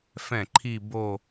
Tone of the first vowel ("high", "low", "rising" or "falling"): falling